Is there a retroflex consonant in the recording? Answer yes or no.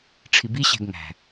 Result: yes